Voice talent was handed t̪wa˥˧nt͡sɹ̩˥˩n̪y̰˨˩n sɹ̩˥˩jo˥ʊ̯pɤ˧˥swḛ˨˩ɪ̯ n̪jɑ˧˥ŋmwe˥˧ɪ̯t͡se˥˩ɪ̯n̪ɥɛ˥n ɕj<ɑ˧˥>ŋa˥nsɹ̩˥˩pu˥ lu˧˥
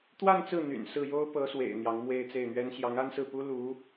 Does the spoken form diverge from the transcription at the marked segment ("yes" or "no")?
no